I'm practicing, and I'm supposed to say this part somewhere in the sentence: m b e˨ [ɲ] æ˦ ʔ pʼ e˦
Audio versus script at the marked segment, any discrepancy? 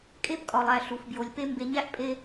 no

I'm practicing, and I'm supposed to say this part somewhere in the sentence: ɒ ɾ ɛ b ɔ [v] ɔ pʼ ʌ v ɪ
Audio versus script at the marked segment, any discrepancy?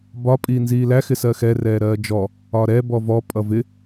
no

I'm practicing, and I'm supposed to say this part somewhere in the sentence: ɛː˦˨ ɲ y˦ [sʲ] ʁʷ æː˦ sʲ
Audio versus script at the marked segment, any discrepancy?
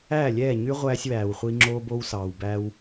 yes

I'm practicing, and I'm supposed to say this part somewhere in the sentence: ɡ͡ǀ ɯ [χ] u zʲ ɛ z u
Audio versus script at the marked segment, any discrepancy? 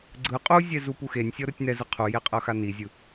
yes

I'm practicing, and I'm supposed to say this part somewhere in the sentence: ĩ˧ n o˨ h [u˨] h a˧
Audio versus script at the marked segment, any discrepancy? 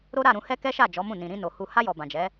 no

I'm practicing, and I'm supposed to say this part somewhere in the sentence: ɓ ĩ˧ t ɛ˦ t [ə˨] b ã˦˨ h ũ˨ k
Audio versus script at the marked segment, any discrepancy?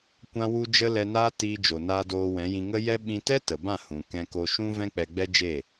no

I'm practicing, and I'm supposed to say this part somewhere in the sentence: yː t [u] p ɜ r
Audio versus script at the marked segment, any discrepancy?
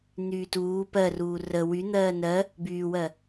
yes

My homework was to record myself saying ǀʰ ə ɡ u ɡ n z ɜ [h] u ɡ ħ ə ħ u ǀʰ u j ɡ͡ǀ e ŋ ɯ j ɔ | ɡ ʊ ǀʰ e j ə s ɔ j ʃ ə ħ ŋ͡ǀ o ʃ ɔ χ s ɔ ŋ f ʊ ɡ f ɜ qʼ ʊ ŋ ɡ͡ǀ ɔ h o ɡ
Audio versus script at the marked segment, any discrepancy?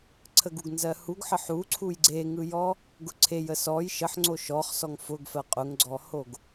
no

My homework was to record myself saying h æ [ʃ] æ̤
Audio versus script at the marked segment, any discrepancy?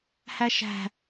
no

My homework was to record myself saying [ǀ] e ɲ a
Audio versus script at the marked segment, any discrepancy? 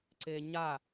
no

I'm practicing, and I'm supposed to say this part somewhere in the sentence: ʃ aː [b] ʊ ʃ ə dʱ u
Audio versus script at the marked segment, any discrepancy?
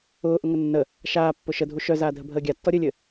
yes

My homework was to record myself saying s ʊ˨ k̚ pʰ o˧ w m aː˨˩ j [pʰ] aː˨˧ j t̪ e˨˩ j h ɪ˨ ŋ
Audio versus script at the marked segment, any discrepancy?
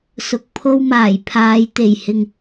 no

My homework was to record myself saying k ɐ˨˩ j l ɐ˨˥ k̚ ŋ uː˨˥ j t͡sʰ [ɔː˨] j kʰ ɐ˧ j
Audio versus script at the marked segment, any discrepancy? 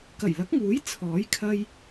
yes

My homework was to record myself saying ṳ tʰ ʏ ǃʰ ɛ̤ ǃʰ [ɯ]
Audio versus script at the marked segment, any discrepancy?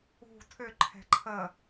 yes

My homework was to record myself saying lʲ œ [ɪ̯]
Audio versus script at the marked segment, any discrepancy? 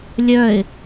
no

